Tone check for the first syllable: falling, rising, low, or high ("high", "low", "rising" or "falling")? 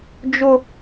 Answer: high